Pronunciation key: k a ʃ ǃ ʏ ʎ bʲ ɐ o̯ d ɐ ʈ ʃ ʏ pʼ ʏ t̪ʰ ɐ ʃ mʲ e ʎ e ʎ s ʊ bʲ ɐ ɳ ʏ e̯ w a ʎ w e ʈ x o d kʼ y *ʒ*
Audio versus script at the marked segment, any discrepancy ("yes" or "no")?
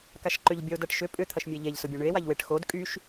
yes